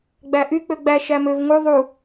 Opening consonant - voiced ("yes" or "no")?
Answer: yes